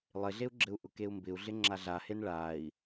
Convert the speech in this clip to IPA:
lˠ ɪ ɮ e u̯ ɡ͡ǁ ɘ u̯ ʔ ʊ k e u̯ m b ɪ u̯ ɮ ɪ ŋ͡ǁ a ɮ a h e n ɭ a i̯

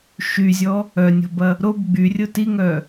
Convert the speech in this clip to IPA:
ʃ y zʲ ɔ | œ nʲ ɔ̤ b ɐ | ɾ o b ɡ͡b y rʲ ʊ t i ŋ œ

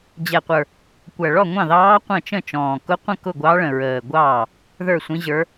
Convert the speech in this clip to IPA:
d͡ʑ ɛ˨˩ qʷ ə˞˨˩ | kʷ æ˨˩ ɭ ɔ˥˩ ŋʷ ɑ̃˥˩ ð ɑː˧˥ qʷ ə̃˥˩ t͡ʃ ə̃˥˩ t͡ʃ ɔ̃ː˨˩ k ʊ˧˥ qʷ ə̃˥˩ k ʊ˥˩ ɡʷ ɑ˧˥ ɭ ə̃˨˩ ɹ əː˨˩ ɡʷ ɑː˥˩ | ð ə˞˥˩ sʷ ĩ˧˥ ʑ ə˞˧˥

